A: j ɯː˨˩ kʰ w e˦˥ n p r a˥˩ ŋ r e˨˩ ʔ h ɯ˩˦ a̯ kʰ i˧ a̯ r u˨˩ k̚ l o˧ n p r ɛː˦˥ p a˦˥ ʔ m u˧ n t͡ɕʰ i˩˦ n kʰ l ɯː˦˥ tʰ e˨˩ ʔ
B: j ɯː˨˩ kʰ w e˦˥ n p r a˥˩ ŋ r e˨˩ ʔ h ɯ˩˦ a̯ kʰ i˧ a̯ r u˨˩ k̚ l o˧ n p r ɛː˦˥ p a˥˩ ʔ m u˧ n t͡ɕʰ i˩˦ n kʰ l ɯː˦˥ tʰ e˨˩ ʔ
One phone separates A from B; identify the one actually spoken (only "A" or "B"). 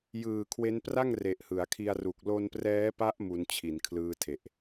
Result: A